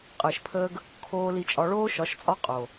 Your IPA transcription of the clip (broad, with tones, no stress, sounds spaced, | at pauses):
qʼ əː˨ ʃ pʰ əː˧ ɡ | kʰ oː˧ l i˧ t͡ʃʼ ɒ˧ ɭ oː˦ ʃ ɒ˨˦ ʃ t͡sʼ ɒ˦ qʼ o˨